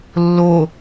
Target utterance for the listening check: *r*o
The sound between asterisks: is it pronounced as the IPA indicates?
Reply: no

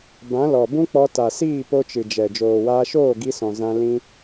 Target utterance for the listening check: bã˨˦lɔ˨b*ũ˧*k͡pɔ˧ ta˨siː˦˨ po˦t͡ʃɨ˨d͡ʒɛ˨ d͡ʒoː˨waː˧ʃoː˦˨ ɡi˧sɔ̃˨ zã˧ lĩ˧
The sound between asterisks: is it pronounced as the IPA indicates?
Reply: no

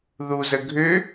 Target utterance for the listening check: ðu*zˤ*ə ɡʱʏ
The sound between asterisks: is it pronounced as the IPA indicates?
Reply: no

